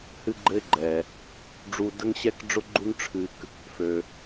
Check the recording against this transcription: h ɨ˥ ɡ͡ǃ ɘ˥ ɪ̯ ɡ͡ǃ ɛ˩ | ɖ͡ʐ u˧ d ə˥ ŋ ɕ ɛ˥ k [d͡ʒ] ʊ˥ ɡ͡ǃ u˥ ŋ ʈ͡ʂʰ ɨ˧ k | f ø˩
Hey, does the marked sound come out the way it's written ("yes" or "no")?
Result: no